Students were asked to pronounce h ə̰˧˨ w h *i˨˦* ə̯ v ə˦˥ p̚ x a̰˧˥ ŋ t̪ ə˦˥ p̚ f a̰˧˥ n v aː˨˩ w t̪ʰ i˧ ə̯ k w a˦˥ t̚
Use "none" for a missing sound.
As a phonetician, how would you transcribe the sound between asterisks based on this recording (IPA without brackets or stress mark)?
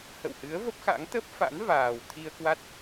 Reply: ɨ˨˦